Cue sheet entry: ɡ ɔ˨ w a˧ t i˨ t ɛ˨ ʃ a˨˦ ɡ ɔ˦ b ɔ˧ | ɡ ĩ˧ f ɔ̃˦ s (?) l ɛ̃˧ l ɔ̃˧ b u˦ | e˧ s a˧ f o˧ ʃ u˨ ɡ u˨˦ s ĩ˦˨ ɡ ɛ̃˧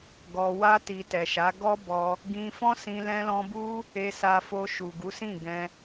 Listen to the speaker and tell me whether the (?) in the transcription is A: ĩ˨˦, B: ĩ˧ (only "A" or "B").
B